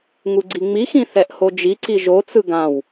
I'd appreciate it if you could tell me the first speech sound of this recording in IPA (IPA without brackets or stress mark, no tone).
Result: ŋ